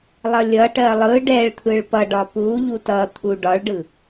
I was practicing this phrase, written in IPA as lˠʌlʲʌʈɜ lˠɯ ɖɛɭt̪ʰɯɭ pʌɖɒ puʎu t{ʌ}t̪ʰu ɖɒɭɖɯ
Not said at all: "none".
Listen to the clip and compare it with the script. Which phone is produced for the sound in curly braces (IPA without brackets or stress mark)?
ʌ